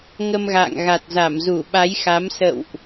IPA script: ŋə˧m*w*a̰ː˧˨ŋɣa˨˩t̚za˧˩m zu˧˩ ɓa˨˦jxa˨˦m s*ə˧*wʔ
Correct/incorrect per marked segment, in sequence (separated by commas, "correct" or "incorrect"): incorrect, incorrect